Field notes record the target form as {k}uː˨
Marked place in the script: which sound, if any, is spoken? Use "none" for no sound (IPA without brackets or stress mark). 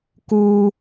k